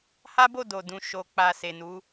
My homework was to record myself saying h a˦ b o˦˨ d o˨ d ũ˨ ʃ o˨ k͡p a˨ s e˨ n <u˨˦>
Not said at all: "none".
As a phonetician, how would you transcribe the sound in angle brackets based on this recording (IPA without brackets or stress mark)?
u˨˦